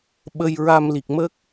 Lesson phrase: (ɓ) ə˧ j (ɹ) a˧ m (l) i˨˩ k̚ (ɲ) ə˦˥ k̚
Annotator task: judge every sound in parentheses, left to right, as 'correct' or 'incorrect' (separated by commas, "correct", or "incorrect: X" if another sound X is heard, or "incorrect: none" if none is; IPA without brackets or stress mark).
correct, correct, correct, incorrect: m